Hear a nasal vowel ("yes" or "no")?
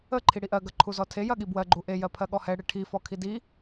no